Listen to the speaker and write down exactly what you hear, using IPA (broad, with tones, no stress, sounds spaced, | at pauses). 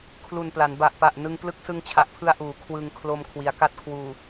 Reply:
kʰ l u˨˩ n p l a˩˦ n b a˨˩ ʔ p a˨˩ ʔ n ɯ˧ ŋ p l ɯ˦˥ k̚ s ɯ˧ ŋ t͡ɕʰ a˨˩ ʔ pʰ ɯ˧ a̯ ʔ uː˩˦ kʰ w ɯ˧ ŋ kʰ l o˧ m kʰ w i˩˦ a̯ k a˥˩ t̚ kʰ w uː˨˩